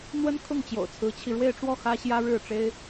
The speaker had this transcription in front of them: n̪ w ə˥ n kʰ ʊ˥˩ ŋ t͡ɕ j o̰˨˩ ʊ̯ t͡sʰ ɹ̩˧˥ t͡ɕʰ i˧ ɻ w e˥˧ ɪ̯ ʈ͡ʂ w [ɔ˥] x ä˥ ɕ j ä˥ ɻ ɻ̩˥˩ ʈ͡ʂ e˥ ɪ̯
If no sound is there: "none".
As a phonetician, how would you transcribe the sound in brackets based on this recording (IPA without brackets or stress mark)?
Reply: ɔ˥˩